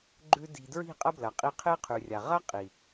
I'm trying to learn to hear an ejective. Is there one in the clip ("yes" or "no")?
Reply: yes